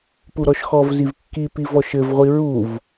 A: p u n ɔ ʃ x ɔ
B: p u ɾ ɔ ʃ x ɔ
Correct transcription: B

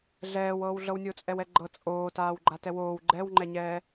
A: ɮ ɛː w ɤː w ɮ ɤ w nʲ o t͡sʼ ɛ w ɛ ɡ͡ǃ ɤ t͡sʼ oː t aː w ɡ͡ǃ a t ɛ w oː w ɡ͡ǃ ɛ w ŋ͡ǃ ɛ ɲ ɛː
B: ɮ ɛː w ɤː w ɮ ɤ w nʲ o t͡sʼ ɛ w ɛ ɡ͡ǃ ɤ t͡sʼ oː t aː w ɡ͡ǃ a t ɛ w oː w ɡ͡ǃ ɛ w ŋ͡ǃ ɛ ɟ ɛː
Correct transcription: A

